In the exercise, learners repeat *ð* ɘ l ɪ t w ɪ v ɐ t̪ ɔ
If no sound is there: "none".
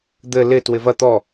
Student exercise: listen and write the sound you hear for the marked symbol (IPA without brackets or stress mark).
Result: d̪